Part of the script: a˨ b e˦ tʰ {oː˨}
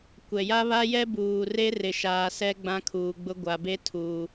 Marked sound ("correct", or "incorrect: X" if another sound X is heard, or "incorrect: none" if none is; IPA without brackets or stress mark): incorrect: uː˨